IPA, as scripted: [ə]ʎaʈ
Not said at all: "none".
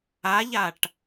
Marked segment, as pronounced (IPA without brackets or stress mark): a